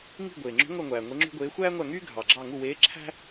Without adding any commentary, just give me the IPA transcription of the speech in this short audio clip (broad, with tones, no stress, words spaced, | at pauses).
ŋi̤˦˨ ɡʷeː˩ŋ͡ǁo̤˧˥ ŋʷæ˦˨ŋʷæː˩ ŋʷe˧˥ŋ͡ǁṳ˥ɡʷeː˧˥ xʷæː˥ŋʷæ˦˨ŋyː˥ ɡʱɑ˩ɡ͡ǁɑ˦˨ ŋu˦˨weː˧˥ǁʰæ̤˥